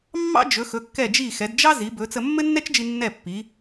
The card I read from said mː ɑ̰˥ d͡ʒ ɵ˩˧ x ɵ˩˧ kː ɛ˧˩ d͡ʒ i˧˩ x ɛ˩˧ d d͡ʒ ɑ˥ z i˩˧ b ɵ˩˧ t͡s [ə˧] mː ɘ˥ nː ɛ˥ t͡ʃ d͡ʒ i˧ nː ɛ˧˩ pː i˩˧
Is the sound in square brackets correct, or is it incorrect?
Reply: correct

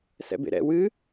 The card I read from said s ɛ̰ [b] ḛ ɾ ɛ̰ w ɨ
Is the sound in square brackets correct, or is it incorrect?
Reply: correct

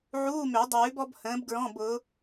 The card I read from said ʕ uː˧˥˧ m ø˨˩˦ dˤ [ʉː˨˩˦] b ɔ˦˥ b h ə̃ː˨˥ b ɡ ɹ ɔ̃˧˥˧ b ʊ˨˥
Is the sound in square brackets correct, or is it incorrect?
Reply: correct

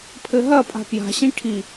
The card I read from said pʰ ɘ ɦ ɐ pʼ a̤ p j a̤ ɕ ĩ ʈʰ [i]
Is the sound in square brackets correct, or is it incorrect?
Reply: correct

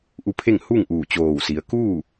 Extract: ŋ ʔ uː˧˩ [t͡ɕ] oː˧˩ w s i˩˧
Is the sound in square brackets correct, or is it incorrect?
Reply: correct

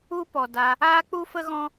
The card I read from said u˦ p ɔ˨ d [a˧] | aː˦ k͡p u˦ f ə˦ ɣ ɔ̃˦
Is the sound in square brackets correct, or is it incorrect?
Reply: correct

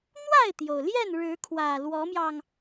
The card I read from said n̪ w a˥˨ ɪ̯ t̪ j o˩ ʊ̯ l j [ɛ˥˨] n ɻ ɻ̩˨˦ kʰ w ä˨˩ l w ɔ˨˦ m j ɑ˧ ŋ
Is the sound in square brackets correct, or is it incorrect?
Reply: correct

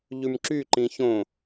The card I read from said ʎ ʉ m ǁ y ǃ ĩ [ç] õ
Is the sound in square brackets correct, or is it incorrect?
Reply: correct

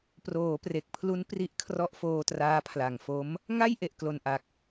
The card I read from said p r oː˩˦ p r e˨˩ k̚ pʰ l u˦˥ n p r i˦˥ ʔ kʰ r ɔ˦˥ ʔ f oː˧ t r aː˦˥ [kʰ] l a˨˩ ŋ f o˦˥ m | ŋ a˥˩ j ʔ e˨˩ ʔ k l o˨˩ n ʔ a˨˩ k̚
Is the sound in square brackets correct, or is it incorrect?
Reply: incorrect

